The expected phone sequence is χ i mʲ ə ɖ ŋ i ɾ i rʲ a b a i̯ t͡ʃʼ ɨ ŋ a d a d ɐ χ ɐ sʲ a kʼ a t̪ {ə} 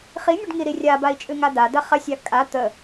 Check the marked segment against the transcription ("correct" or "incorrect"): correct